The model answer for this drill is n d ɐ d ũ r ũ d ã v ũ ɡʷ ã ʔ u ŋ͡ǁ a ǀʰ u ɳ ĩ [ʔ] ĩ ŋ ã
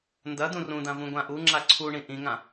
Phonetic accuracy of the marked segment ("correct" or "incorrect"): correct